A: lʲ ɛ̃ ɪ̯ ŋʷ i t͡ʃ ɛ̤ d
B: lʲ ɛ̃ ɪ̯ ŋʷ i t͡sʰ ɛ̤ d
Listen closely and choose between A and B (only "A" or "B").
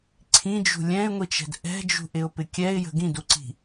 A